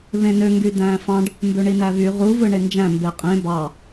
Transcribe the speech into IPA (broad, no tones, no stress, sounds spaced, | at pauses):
β ẽ n ø ŋ ɡ y d æ̃ː f ɑ̃ ɖ | m b ø ɳ i n æ β y ʁ u v ɯ ɳ e n d͡ʒ æ̃ m b e qʼ ẽ b ɑ